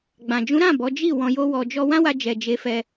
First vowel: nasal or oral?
nasal